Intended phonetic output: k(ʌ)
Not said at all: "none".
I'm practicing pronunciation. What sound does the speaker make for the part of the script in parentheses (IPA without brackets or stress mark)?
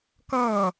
ʌː